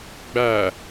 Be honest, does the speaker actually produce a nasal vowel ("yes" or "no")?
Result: no